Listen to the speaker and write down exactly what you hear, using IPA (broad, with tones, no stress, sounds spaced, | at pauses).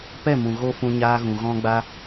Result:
p ɛ˦˨ m ũ˨ ɣ o˦ f ũ˧ ɲ aː˧ ɣ ũ˨ ɣ ɔ̃˧ ɡ͡b a˧